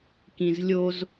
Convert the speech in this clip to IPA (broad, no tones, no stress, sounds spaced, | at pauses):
k ĩ z lʲ o z